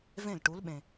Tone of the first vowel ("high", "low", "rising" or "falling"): falling